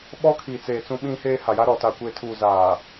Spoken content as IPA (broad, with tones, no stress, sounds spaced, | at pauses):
ɓ ɔ˦ kʰ i˨ t͡s eː˨ t͡s ũ˨ ɓ ĩ˨ h eː˨ h a˨ j a˦ ɾ ɔ˨ t a˨ kʷ eː˨ tʰ uː˨ z aː˨